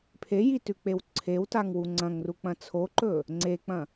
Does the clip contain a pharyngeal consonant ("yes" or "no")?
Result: no